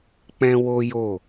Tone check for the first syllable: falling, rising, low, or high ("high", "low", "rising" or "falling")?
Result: high